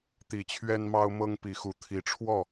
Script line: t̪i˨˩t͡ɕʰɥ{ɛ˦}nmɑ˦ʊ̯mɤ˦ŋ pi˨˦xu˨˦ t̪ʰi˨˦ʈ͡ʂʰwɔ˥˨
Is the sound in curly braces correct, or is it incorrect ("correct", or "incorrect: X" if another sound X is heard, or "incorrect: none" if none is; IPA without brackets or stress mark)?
correct